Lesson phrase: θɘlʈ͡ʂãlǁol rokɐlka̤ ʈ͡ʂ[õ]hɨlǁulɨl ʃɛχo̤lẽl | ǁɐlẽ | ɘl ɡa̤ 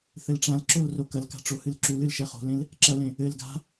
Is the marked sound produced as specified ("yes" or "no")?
no